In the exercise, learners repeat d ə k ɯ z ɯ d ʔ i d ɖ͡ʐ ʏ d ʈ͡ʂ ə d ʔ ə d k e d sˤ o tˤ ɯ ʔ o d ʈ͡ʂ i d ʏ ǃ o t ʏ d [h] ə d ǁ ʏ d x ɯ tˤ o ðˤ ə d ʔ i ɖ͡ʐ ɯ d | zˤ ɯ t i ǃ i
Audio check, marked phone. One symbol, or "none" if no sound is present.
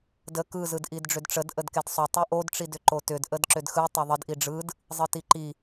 ʔ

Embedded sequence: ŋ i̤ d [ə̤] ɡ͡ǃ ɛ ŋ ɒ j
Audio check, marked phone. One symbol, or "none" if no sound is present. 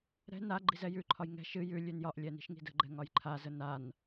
ə̤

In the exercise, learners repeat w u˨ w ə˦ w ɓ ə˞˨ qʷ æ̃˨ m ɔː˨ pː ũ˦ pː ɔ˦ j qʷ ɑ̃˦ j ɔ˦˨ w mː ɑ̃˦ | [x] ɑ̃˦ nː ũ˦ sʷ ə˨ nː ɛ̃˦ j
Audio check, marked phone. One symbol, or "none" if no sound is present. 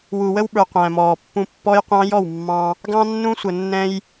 ɡ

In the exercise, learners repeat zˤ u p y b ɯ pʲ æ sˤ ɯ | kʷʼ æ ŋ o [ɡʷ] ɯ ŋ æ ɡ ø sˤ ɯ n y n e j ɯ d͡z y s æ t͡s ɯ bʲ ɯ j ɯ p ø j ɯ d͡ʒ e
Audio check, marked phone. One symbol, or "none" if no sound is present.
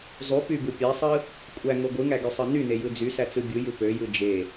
ɡʷ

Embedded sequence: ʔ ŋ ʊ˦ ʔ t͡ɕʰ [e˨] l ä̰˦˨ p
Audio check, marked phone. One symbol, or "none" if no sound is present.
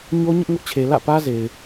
e˨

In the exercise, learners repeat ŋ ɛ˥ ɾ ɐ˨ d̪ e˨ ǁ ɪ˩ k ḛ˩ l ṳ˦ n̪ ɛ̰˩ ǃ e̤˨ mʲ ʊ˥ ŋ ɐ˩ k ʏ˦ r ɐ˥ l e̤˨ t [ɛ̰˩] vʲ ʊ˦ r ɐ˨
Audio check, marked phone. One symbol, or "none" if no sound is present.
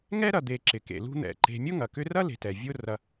ɛ˩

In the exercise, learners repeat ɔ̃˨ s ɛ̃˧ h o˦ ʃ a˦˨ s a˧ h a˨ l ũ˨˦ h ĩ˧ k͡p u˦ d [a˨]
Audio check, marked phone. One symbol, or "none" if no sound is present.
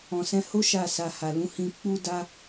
a˦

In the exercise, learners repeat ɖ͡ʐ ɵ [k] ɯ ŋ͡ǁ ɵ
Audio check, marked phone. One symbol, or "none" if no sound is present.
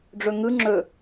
ŋ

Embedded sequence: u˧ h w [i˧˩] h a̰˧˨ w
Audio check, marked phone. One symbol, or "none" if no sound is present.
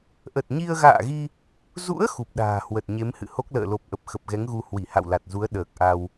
i˧˩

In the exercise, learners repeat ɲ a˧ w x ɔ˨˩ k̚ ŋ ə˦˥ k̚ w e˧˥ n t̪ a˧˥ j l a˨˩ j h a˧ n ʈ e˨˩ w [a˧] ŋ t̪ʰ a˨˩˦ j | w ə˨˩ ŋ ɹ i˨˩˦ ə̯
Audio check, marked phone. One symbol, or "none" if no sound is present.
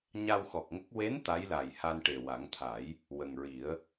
a˨˩˦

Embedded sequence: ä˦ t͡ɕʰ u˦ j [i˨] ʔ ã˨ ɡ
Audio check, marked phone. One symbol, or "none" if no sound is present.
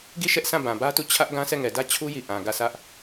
i˨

